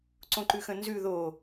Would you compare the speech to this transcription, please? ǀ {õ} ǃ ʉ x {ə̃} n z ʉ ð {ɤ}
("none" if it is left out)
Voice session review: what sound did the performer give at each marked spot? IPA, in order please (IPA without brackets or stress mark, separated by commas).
õ, ə̃, o